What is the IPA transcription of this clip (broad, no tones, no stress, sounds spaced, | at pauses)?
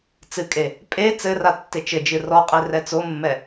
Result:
t͡s ɨ kʼ e | pʼ e t͡s ɘ r a tː e t͡ʃ ɘ d͡ʒ ɨ r ɔ qʼ e r ɛ t͡s o mː ɛ